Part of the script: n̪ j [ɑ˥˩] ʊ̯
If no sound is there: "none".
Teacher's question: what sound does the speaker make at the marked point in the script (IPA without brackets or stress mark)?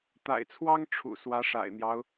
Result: ɑ˦